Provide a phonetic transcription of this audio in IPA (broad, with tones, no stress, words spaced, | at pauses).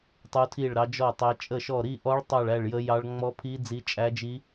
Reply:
tˤu˦˥tʰi˥˧ɭɾɑ˦˥d͡ʒɔ˥˧ tˤæ˦˥t͡ʃʼə˥˧ʃɔ˥˧ ɾi˥˧ʔɔ˦˥ɭ tˤɑ˥˧ɭæ˥˧ɭjə˦˥jɑ˦˥ɭ ŋ͡mɔ˦˥pʰi˦˥ d͡zi˦˥t͡ʃʼæ˦˥d͡ʒi˦˥